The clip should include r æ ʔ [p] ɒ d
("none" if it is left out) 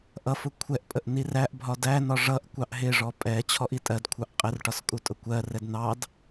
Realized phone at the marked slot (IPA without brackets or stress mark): bʱ